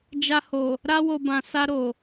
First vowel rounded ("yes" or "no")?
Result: no